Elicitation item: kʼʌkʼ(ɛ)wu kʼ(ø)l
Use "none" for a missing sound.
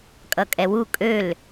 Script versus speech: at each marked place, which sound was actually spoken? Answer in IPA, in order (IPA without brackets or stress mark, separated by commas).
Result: ɛ, ø